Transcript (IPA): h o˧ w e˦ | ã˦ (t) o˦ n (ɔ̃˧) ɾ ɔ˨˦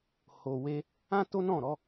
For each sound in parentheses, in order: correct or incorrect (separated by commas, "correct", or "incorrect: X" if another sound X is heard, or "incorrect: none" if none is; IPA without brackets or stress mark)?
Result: correct, incorrect: ɔ̃˦˨